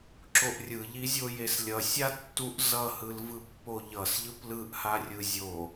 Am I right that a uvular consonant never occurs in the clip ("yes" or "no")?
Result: yes